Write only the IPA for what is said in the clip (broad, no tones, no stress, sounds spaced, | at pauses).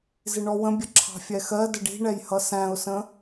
z ɪ ɳ ɔ w ə̃ bʲ ə ǁʰ ɑ̤ fʲ ɛ x ɜ d ə ɖ i̤ ɳ ɛ j h ʌ s æ̃ ʊ̯ s ə̃